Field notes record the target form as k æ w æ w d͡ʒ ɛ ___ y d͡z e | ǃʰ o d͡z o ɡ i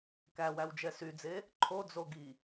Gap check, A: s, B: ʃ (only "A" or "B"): A